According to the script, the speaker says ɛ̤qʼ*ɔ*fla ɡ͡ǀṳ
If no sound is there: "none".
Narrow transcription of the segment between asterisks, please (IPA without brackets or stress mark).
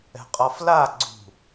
ɔ